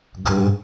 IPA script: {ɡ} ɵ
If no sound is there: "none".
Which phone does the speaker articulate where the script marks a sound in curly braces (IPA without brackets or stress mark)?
ɡ